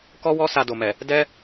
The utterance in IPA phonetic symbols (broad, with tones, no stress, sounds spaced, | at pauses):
k ɔ˦ w ɔ˦ s a˧ d o˨ m ɛ˨ | d ɛ˦